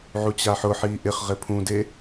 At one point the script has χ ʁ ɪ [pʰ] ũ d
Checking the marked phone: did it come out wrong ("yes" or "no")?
no